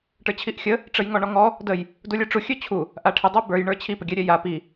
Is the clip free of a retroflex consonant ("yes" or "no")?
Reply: no